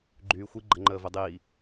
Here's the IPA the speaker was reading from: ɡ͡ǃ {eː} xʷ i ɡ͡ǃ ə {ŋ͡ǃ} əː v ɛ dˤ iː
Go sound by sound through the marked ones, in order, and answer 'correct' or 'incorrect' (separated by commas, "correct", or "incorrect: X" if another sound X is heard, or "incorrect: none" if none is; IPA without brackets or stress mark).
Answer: incorrect: yː, correct